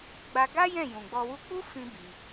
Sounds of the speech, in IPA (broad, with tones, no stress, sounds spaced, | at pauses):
ɡ͡b a˦ ɡ a˦ j ɛ̃˦˨ j ũ˨ ɡ͡b ɔ˧ w u˦ k͡p u˦ f ĩ˦ b i˧